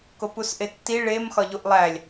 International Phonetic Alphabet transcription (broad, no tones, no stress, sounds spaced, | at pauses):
k o p u s ʔ e tː i ɭ e m x ɒ ʎ u ʔ lˠ æ lʲ